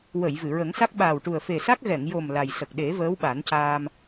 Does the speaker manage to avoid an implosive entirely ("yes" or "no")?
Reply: no